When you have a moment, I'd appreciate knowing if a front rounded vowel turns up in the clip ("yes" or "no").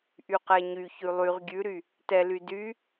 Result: yes